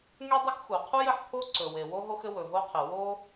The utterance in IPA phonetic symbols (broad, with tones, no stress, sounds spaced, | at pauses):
ŋ y˥ dˤ ɵ˥ k x u˩ qʰ u˥ j ɘ˩ ħ pʰ o˥ ǀ ɵ˩ w e˩ w o˥ ɦ o˥ x ɘ˥ w ɵ˩ ɦ o˥ qʰ ɘ˩ w o˥